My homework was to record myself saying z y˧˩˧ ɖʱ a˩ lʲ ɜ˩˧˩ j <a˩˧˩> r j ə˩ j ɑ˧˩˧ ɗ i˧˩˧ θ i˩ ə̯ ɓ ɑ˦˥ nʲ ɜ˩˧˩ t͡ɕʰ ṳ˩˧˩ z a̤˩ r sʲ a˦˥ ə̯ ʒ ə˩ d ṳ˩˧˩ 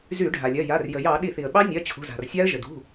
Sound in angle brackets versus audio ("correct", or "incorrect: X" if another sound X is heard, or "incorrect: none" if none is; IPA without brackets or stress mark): correct